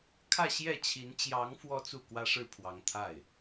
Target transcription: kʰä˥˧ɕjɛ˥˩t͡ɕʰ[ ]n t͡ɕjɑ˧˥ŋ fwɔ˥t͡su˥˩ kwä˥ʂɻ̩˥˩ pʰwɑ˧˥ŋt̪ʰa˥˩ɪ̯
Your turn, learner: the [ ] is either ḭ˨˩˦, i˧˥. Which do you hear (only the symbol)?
i˧˥